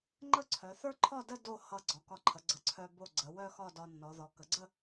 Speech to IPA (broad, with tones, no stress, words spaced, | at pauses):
ŋ͡ǃə˥˧ǀʰœ˩˧θə˞˥ ǃʰɒ˥˧də˥˧ do˥˧ hʌ˧˩ ɡ͡ǀɒ˩˧kɒ˧ǃʰə˩˧ ɡ͡ǀə˩˧ǀʰœ˧ bo˧˩ ɡ͡ǀə˩˧wœ˥˧xɒ˥˧ dɒ˧nːɔ˩˧ðɔ˩˧ kə˩˧ɡ͡ǀə˥˧